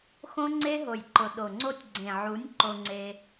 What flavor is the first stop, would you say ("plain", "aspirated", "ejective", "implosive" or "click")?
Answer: click